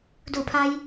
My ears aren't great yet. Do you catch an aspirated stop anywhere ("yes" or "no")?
yes